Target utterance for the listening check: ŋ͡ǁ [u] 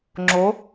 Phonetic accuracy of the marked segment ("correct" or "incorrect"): incorrect